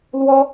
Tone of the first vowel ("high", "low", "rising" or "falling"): high